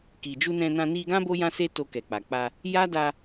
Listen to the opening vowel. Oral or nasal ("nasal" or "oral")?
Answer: oral